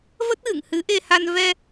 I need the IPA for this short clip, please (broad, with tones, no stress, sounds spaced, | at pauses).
v ə˦˥ t̚ ɣ ɨ̰˧˨ ŋ h ɨ˨˦ ʔ e˧ h a˧ n v ɛ˧